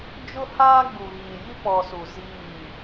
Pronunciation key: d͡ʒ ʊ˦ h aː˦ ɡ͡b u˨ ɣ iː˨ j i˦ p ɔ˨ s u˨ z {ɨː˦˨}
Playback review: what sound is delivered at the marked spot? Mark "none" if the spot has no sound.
iː˦˨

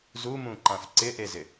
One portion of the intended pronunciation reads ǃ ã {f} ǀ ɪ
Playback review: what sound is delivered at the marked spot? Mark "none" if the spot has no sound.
f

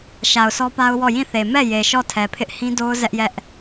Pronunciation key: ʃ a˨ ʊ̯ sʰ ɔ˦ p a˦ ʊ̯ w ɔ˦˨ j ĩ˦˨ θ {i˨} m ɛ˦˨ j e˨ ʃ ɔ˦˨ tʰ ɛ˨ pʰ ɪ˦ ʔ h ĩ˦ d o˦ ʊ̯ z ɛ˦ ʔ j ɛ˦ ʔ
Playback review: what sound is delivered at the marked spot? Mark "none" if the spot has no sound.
e˨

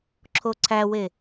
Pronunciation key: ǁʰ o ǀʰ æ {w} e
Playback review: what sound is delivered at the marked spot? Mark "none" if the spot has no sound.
w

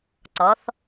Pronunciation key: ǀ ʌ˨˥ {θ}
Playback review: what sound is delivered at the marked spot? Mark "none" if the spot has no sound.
θ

